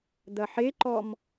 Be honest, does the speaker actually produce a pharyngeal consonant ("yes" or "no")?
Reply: yes